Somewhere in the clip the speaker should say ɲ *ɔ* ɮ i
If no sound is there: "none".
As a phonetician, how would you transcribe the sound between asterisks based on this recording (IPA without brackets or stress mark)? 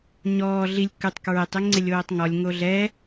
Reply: ɔː